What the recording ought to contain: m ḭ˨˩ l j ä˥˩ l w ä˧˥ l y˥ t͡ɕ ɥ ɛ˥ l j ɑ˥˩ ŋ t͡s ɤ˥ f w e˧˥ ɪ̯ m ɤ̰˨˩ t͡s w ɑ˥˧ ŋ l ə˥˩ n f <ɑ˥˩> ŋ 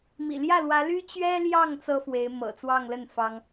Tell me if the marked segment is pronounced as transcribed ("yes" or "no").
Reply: no